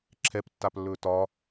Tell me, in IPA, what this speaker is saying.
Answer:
ǁʰ ɛ p tː a p lː ɵː t ɒ

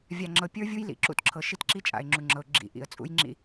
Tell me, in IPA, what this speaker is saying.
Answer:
vʲ a˨ ŋ͡ǁ ɤ˨ pʲ ə˞˦ vʲ u˦ j l ḭ˨ ǁ ṵ˦ t ǁʰ ɤ˨ ʃ i˦ t ǁ i˦ t͡ʃʼ a̰˨ ɪ̯ ŋ͡ǁ u˨ ŋ͡ǁ ɤ˨ ʊ̯ ɡ͡ǁ ḭ˨ ʔ ḭ˨ ə̯ t͡sʼ ṵ˦ j ŋ͡ǁ ḭ˦

